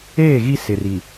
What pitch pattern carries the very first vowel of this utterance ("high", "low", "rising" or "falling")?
falling